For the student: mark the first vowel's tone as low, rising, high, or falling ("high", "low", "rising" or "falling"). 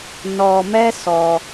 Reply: low